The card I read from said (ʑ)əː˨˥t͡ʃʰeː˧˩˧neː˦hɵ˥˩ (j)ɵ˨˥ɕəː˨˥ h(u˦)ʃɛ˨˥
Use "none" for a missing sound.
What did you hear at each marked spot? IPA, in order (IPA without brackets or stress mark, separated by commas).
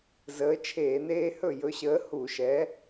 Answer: z, j, u˧˩˧